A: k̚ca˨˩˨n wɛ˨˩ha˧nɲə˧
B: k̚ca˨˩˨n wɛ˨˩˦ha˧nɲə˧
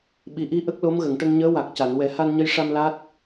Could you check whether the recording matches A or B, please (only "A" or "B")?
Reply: B